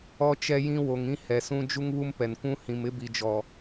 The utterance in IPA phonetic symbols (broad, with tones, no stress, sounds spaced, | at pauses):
ɔ˦ t͡ʃ ɛ˦ j ĩ˦ w o˨ ŋ ĩ˦ h ɛ˨ s ũ˦ d͡ʒ u˦ ŋ β u˦ m p ɛ˨ n kʷ ũ˦ h ĩ˨ m ɪ˦ b i˨ d͡ʒ ɔ˨